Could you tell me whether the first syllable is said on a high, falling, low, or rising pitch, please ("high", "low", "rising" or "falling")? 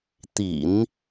low